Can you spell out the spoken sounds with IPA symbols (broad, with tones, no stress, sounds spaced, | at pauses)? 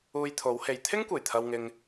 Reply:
uː˧ j t̪ʰ o˨˥ w h e˨ j t̪ʰ ɪ˥ ŋ kʷ e˨˩ j t̪ʰ ɐ˨ w ŋ ɪ˨ ŋ